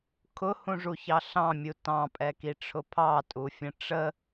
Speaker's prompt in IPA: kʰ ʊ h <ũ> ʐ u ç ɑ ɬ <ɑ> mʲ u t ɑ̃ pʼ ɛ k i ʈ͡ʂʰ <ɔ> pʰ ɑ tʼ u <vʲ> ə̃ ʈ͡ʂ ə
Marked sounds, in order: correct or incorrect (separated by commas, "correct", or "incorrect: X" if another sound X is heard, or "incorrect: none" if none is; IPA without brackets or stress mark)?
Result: correct, incorrect: ɑ̃, incorrect: ʊ, incorrect: fʲ